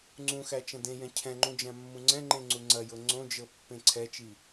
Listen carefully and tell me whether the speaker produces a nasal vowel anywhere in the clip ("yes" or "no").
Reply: yes